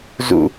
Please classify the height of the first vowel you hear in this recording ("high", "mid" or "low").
high